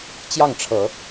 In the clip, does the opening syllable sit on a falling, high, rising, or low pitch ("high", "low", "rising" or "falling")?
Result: falling